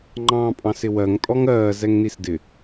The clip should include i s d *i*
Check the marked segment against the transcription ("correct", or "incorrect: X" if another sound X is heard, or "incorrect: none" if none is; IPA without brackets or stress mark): incorrect: ɪ